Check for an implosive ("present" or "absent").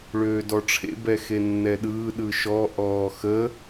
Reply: present